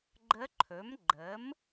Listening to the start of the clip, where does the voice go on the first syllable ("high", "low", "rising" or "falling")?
rising